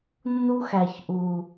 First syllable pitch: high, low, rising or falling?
high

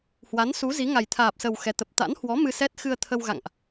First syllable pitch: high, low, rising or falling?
rising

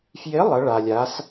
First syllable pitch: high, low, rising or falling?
rising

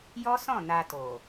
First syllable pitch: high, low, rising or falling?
high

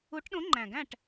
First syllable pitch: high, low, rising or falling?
rising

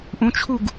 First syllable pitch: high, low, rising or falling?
rising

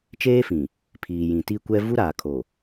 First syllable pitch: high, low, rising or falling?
high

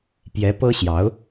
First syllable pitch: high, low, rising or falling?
rising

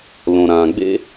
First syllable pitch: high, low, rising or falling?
low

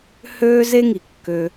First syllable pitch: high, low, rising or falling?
high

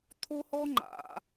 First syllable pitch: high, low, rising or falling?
high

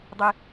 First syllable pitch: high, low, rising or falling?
low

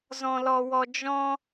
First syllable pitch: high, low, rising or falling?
high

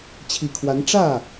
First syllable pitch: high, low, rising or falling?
low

